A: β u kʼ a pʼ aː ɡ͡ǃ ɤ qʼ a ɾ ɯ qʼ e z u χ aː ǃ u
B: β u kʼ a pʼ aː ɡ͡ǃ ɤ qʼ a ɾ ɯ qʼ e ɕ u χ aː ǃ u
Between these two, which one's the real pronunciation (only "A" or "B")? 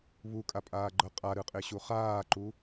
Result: B